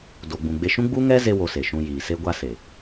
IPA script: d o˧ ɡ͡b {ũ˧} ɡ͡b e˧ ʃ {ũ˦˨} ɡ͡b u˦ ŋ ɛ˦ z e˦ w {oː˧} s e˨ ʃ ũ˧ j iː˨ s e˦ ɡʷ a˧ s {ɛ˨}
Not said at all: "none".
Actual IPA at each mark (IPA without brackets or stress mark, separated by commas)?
ũ˧, ũ˦, o˧, e˨